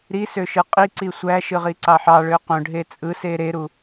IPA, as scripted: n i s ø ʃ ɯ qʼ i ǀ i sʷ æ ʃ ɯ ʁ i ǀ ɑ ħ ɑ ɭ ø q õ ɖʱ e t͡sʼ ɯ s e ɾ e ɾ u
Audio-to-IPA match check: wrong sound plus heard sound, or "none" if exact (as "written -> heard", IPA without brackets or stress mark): n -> ɾ